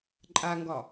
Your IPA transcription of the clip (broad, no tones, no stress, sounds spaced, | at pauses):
ǃʼ a ŋ ɡ ɒ